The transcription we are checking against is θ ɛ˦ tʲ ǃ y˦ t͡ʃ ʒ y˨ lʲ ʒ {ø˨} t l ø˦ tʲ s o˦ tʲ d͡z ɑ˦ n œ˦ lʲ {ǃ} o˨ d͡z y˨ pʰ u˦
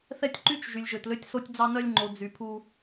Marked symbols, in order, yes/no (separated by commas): yes, no